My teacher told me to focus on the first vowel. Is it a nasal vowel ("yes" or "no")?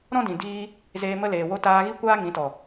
yes